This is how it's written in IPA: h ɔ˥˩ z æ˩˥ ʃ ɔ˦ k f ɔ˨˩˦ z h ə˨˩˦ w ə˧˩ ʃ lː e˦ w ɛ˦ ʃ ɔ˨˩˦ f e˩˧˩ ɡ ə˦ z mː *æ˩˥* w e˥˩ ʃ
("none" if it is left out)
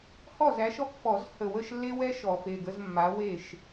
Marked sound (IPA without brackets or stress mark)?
a˩˥